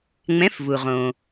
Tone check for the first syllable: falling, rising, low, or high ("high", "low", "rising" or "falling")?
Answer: rising